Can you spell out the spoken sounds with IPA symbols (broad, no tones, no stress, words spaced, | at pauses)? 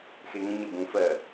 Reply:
xeŋə̃ ɲəbũ fɜ